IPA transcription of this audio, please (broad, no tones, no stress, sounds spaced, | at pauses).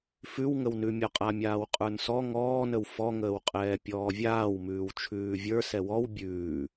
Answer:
f ʉ w ŋ ə w n ʉ mʲ ɔ qʼ a mʲ aː w qʼ ə˞ n s ɔ ŋ ɔː n ə w f ɔ ŋ əː w qʼ ɛː pʲ ɔː vʲ aː w m ʉː w t͡ʃʰ ʉː vʲ ə˞ s ɛ w ɔ w bʲ ʉː